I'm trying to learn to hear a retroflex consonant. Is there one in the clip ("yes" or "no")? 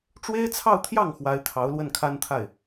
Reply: yes